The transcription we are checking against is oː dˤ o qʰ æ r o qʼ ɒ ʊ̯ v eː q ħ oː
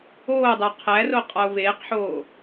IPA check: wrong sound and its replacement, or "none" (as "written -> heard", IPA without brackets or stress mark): none